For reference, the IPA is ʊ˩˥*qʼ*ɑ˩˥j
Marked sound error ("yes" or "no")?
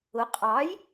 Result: no